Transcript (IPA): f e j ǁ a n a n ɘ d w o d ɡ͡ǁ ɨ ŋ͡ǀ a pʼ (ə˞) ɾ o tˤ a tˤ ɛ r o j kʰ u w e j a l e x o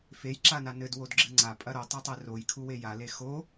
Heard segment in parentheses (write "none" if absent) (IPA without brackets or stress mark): ɐ